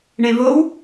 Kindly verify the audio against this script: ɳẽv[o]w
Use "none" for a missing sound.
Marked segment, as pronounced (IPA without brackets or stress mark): o